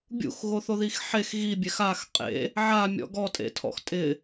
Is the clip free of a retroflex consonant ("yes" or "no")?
yes